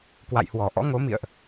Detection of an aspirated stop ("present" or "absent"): absent